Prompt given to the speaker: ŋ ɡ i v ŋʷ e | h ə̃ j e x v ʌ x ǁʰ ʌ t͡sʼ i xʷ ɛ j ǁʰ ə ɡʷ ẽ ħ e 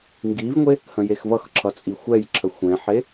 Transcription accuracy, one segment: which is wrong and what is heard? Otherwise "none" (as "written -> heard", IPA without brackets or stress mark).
ɡʷ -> xʷ